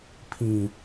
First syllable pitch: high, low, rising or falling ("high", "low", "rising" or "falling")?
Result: low